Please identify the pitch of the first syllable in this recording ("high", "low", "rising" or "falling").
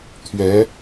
rising